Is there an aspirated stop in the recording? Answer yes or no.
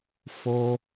no